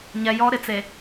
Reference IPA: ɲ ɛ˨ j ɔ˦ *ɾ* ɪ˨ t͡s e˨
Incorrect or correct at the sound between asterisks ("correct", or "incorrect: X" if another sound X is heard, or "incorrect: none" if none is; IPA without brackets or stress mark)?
correct